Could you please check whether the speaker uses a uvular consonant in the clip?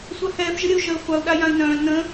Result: yes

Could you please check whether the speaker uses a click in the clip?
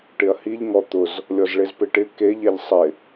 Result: no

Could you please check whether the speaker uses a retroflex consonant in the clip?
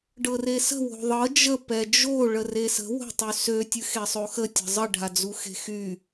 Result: yes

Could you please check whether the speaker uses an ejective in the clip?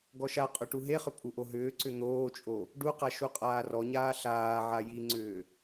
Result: yes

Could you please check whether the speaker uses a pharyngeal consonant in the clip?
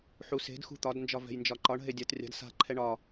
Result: yes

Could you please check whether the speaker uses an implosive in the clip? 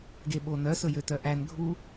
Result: yes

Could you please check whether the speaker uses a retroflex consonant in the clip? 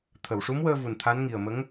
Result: yes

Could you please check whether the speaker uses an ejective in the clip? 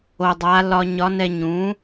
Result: no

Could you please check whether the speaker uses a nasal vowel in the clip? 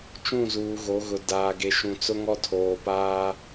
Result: yes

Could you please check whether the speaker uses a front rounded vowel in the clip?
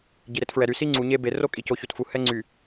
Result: yes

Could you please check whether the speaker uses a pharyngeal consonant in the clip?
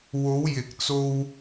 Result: no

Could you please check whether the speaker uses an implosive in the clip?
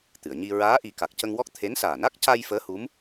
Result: no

